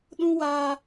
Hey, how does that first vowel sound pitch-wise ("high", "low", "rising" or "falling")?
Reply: high